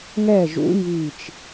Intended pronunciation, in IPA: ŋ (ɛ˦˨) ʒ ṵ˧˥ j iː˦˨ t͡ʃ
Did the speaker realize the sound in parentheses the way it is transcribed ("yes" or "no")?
yes